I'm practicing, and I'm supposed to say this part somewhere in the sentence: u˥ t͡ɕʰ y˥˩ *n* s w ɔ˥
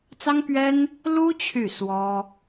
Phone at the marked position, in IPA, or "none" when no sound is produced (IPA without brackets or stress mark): none